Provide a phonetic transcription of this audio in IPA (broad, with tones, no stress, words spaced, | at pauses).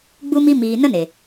ɡ͡bu˦mi˦ miː˨ nə˦ne˨